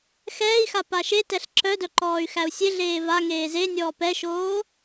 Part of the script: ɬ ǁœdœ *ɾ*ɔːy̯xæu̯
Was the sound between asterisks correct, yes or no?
no